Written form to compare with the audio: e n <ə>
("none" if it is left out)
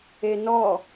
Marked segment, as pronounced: ɔ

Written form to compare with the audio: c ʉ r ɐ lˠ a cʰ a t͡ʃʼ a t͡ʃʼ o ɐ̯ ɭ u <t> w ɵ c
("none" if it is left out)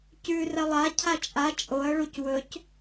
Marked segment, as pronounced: c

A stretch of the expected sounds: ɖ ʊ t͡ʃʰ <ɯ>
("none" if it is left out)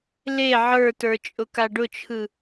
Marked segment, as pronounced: ɯ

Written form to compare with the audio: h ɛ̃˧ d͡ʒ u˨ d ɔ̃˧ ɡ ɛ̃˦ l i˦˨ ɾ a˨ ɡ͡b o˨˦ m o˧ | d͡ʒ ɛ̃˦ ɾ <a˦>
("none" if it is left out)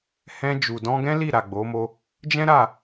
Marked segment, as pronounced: a˦˨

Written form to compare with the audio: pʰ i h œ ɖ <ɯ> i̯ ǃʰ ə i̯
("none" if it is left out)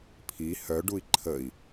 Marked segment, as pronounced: u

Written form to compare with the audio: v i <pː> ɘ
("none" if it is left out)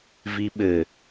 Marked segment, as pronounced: ɓ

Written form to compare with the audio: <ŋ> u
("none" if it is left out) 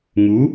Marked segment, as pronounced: ŋ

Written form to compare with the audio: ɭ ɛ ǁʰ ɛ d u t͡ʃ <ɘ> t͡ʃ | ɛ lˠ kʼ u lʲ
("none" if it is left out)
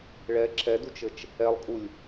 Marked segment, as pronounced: ɘ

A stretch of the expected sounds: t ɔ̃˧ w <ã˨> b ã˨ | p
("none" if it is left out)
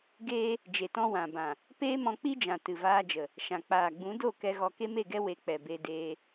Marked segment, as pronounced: ã˨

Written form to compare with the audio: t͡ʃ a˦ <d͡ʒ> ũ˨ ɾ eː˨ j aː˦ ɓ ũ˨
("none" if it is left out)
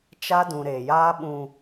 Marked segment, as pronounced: d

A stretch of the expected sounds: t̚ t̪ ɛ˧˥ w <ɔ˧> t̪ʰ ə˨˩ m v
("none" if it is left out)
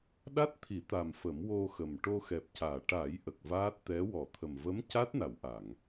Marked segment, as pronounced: ɔ˨˩˨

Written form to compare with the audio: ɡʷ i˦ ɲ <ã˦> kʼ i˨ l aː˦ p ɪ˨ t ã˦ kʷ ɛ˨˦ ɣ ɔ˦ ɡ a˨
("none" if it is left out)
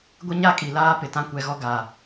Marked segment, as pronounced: a˦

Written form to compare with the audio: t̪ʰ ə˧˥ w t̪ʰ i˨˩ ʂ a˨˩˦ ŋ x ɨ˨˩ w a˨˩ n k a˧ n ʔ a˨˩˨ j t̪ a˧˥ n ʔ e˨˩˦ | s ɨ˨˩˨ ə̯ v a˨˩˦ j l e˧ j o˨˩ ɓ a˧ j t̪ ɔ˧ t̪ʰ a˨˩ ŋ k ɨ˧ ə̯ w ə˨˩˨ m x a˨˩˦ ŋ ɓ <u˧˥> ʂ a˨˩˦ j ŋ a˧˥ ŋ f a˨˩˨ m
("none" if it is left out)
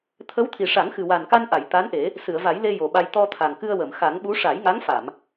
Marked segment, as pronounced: u˧˥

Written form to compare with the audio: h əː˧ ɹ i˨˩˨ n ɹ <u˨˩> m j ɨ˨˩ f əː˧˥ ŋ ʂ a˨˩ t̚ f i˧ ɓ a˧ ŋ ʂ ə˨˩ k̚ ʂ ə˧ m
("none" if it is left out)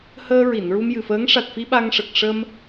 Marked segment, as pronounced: u˧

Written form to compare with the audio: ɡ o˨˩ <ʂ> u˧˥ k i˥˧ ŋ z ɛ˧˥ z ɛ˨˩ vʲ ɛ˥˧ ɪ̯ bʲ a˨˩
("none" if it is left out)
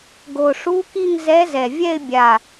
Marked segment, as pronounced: ʂ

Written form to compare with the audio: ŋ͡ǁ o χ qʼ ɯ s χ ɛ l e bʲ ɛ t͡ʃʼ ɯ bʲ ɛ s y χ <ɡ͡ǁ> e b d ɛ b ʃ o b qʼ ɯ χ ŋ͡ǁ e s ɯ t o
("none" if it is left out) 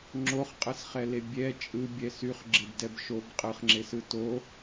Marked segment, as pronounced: ɡ͡ǁ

